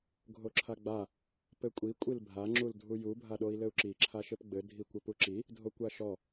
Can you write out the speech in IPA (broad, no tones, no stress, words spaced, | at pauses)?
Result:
ɡʱoǁʰaɡ͡ba | pɘkʷʼi kʷʼilbʱa ŋ͡ǁuldʱuju bʱaɗoi̯lɘu̯ǁi ǁʰaʃɘpɡ͡bɘ dʱikʷɘpuǁi | dʱokʷaʃɔ